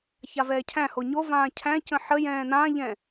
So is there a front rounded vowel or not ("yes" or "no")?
no